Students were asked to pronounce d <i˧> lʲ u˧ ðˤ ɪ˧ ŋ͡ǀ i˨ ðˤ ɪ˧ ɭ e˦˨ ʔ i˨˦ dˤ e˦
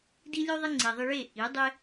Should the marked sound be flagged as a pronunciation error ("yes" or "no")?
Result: no